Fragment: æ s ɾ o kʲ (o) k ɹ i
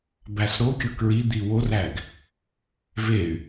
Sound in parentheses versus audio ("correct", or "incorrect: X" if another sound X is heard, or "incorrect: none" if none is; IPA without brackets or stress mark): correct